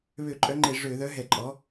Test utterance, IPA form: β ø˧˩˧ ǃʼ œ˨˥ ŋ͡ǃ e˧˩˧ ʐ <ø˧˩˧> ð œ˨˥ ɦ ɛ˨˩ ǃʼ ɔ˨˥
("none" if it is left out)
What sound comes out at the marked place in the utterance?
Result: ø˧˩˧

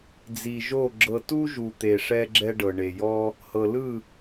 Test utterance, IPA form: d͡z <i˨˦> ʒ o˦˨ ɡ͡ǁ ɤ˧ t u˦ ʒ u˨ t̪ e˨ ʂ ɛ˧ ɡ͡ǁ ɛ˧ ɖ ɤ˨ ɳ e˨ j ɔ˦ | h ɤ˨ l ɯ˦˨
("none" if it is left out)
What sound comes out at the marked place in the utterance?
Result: i˨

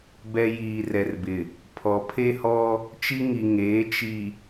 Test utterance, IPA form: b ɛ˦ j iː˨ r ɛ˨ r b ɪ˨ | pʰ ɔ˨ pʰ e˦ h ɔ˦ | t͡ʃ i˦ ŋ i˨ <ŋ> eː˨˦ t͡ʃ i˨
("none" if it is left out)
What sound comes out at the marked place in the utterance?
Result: ŋ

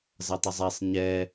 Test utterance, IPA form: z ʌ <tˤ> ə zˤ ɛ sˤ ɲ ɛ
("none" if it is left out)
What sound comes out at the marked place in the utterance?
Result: tˤ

